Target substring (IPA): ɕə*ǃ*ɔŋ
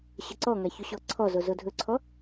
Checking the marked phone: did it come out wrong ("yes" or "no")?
yes